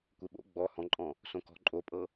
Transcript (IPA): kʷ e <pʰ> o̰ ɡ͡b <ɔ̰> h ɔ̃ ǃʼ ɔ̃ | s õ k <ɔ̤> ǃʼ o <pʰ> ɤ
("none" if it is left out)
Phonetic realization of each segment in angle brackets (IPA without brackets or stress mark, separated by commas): ɓ, ɔ, ɔ̤, pʼ